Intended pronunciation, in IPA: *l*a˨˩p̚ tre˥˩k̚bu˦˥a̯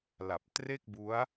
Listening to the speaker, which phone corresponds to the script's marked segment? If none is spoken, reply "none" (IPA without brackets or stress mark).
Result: l